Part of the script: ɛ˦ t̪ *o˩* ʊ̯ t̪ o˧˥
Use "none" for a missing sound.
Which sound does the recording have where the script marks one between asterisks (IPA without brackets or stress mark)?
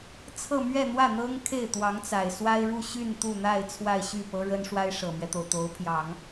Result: o˩